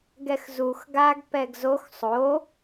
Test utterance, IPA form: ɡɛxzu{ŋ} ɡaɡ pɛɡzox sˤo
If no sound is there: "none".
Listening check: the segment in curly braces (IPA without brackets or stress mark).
x